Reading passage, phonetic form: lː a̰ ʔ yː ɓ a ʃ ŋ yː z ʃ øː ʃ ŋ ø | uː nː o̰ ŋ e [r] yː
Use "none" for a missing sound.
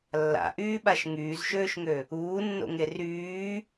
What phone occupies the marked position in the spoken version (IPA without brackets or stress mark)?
r